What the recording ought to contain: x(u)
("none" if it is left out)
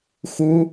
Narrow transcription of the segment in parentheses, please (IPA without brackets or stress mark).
u